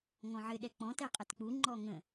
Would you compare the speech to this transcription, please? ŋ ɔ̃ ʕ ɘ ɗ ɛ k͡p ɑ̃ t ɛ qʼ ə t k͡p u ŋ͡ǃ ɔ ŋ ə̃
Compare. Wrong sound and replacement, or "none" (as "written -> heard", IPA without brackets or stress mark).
ɑ̃ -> ɔ̃